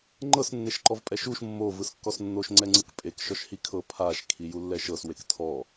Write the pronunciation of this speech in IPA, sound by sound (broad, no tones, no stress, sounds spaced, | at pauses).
ŋ͡ǃ ɤ s nː e ʃ ǃ ɔ v pʼ ɛ ʃ u ʃ mː o v ɯ s kː ɔ s nː o ʃ ŋ͡ǀ ɛ ŋ͡ǀ ɯ k pʼ e k ʃ ɔ ʃ h i kʰ ɤ pʰ a ʃ kʰ i j u lː ɛ ʃ ɤ s w e k tʰ ɔ